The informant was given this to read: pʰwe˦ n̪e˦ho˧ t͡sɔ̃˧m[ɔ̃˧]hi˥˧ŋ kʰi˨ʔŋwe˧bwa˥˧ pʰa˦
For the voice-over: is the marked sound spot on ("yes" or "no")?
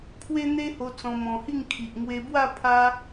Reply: yes